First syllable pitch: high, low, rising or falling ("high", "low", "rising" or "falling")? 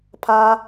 high